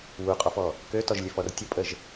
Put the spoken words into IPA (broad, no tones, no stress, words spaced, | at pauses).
wuqʼɔfɔ | køtɔʒlʲøfɔr tʲəpʼəʒ